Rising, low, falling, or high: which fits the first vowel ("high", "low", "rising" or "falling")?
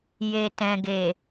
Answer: low